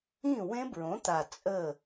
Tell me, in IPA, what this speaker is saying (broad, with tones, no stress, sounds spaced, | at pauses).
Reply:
ĩː˥˩ w ẽ˦˥ b ɹ õ˩˥ t̪ a˨˩ t͡sʼ ə˥˩